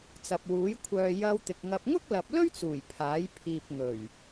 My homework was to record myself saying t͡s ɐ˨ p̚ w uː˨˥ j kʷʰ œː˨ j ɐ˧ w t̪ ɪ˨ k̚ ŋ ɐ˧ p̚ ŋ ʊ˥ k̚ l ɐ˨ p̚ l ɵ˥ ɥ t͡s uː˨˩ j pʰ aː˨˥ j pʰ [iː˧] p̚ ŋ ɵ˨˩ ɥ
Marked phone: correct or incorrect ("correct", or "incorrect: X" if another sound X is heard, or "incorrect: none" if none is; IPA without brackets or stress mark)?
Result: incorrect: iː˨